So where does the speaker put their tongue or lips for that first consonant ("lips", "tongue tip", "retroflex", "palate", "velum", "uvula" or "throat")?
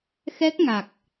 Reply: velum